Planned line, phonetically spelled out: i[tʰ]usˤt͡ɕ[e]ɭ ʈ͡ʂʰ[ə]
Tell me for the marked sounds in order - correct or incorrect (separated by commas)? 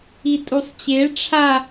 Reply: incorrect, correct, incorrect